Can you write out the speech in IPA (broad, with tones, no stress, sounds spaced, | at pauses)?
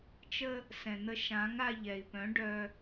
t͡ʃ ə˧ | s ɛ̃˨ n̪ ə˧ ʃ ã˨˦ ŋ a˧ ʎ ɛ˨ i̯ p œ̃˨˦ ɖ œ˧